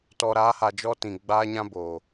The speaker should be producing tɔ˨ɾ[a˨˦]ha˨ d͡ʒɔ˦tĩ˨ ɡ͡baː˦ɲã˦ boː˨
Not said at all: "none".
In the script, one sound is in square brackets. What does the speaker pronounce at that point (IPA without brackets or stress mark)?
a˨˦